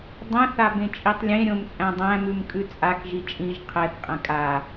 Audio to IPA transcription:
dˤɛ̃θ abẽt͡ʃʼitˤlʲẽ ɾʲõmt͡sʼæ̃dˤæ̃ mʉmkʼʉt͡sʼak ʒit͡ʃʼĩʒ qʰɛθ qʼɛ̃kʼa

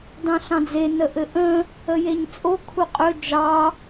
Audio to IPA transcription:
dɑ̃ɬɑ̃d͡ze nəʔɘʔə̃ | əjeɲt͡sʼo kʰuqʼɵ d͡ʒɑ

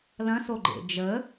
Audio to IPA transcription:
lɐ̃soɡ͡ǃḛ d͡ʒə

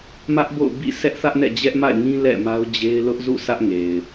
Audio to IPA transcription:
mä˦ʔbo̰˦˨ʊ̯ bḭ˦˨sʰɛ˦ʔθä˦ʔnɛ̰˦˨ d͡ʑɛ˦ʔma̰˦˨ɪ̯ŋĩ˦ lɛ̰˦˨ma˦ʊ̯d͡ʑe˦ɪ̯ lʊ˦ʔzṵ˦˨sʰä˦ʔŋe˨ɪ̯

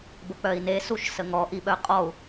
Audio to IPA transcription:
bək͡pœi̯ne suʃsəŋɔ ʔiɓœqʼɔu̯

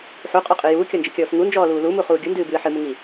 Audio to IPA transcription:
ħuqʼɔqʼɨ juːkʲɔnd͡ʒɨkʲɔːf ŋund͡ʒɔːluː lumuχuː ɡʲundɨːbɨː ħɨmuŋi

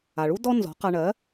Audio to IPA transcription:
a˩ɭu˥ dɔ˥nzɔ̤˩˥qa˧ ɳɜ˩˥

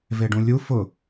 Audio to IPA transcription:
veɖũlʲu fʊ

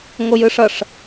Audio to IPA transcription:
ŋojɯʂʌʂ

